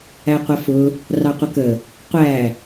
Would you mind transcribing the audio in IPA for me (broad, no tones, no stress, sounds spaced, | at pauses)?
æ qʷ ʌ f ʊ | r ɑ qʷ ə k ə | qʷ æ